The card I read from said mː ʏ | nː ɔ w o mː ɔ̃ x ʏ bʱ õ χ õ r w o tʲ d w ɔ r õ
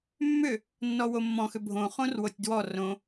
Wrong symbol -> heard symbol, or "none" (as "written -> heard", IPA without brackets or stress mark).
none